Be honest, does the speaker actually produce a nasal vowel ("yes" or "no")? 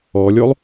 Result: no